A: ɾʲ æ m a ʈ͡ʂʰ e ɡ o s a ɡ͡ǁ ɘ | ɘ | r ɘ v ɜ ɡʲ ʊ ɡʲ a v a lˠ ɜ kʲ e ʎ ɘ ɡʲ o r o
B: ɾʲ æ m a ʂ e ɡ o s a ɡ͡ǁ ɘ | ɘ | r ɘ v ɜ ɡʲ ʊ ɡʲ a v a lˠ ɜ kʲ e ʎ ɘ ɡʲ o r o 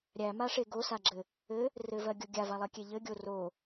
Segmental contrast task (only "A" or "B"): B